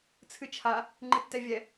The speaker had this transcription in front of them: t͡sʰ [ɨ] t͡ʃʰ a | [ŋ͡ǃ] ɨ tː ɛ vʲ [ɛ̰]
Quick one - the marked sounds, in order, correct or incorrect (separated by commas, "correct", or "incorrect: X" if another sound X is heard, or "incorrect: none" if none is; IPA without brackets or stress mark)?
correct, correct, incorrect: ɛ